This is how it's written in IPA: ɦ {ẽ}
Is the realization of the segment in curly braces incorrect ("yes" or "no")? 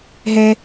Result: yes